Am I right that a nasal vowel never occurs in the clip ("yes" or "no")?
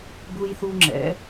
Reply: yes